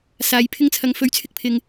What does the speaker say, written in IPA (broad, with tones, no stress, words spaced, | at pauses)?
saː˨˧jpʰɪ˥ŋt͡sʰɐ˧ŋ fɵ˧ɥt͡sʰɪ˥k̚ pʰɪ˧ŋ